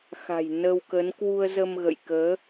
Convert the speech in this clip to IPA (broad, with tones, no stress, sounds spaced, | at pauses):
x a̤˨˩ j n ə˧ w k ə˨˦ n k w u˧ ə̯ z ə˧ m ɣ ə̰˧˨ j k əː˨˦